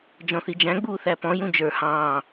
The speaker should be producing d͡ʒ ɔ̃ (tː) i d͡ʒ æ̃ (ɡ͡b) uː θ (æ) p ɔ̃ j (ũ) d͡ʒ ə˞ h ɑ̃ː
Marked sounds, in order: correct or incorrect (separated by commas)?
incorrect, correct, correct, correct